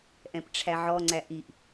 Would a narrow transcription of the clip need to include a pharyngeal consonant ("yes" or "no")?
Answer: yes